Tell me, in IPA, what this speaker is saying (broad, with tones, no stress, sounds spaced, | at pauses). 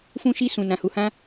f ũ˧ ʃ i˧ s ũ˨ n ã˨ h u˨ h ã˧